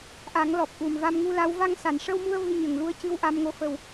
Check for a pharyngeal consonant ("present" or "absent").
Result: absent